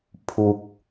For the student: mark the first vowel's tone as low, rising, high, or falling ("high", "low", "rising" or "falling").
low